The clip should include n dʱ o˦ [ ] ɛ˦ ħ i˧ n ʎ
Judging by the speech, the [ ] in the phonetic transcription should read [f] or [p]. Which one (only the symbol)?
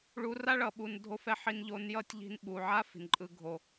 f